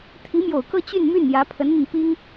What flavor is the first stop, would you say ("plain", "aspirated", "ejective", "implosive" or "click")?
aspirated